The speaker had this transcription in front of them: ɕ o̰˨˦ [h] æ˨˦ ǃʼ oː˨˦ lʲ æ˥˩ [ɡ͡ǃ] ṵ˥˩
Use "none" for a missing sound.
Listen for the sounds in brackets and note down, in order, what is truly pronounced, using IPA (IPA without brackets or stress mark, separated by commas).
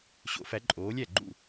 f, ɡ͡ǃ